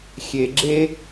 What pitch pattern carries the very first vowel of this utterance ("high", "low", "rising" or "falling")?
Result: low